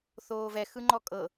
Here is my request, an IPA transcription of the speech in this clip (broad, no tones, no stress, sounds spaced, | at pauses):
θ oː v ɛ x ɯ ŋ͡ǃ ɔ kʼ ɤ